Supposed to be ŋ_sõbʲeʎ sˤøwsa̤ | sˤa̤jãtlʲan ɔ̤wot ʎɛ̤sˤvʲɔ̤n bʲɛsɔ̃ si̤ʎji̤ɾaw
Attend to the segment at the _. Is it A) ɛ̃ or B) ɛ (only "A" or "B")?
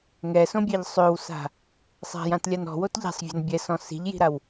B